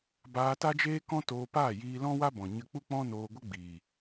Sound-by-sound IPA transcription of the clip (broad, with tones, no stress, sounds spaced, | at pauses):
b aː˧ t a˦ d͡ʒ eː˦ k ɔ̃˦ t oː˧ p aː˦˨ j iː˧ l ɔ̃˦ w a˦ b ɔ̃˨ ɲ ə˧ k͡p u˦ k͡p ɔ̃˦ n oː˧ ɡʷ ə˦ ɡ͡b iː˨